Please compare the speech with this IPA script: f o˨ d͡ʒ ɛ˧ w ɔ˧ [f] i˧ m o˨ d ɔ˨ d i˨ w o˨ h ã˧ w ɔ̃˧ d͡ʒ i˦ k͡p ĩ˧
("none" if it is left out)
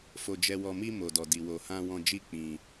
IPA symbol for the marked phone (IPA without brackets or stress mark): m